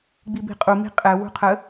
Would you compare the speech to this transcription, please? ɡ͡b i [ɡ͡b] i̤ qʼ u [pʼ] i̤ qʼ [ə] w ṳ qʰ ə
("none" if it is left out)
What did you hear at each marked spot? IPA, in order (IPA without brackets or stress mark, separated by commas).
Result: b, m, ɛ